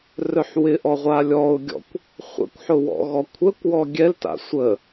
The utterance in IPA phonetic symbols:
rœħwɪʔɔ ʁʷalʲɔʊ̯ɡʲɔ̰kʷ | χʷə̰kʷħʊ wɔ̰ɣɔkʷʰəkʷwɔ ɡʲɛlta̰ sʷə

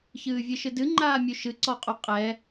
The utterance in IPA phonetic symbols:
çɨːvʲɨʃɨdɨ ŋ͡ǃaːmʲuʃɨ ǀɔqʼuqʼɛ

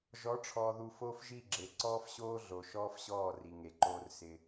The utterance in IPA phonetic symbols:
ʒɔ˨˦ʈ͡ʂʰɔ˨ðu˨ fo˦fʒi˦˨ ɡ͡ǁe˨ǀɔː˦fɕoː˦ɮo˨ ʃɔː˦fɕɔː˦˨ri˨ ŋe˨ǃoː˦rsɪ˦

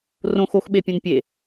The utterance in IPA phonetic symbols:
rõx oxɓepʲũn pʲe

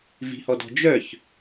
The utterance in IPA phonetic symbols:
vi̤hɔdɔ̤ d͡ʒœç

